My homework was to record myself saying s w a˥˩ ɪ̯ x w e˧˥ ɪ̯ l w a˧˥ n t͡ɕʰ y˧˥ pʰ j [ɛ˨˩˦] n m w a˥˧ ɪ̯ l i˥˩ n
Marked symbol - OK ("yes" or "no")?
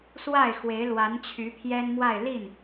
no